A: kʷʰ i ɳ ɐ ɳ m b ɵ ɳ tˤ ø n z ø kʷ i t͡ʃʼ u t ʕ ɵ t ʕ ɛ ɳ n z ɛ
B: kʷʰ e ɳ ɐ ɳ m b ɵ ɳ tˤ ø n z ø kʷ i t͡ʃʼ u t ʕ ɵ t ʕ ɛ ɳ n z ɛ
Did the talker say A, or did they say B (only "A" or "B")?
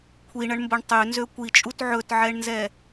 A